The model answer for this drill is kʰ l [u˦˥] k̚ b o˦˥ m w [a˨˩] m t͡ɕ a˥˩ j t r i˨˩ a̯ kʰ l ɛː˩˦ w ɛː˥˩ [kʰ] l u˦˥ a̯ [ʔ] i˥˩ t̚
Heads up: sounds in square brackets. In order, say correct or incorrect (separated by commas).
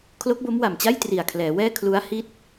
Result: incorrect, correct, correct, incorrect